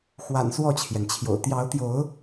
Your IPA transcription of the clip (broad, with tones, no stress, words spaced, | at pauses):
xwa̰˨˩n swɔ˥˨t͡ɕʰjɛ˩nt͡ɕʰjo̰˨˩ʊ̯ t̪jɑ˨˦ʊ̯t̪jo˨˦ʊ̯